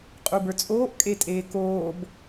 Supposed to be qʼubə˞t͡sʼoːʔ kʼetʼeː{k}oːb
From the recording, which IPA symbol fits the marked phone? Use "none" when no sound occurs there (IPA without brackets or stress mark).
k